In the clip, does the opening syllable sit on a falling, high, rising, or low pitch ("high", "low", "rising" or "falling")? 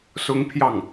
high